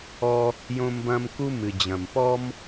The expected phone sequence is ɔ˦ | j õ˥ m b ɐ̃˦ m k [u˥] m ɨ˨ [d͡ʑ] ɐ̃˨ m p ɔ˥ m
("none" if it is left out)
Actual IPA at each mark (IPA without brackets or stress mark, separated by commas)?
u˥, d͡ʑ